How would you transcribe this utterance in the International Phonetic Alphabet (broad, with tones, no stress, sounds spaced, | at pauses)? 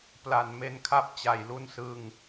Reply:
p l a˨˩ n m e˧ n kʰ a˥˩ p̚ t͡ɕ a˧ j l u˥˩ n s ɯ˥˩ ŋ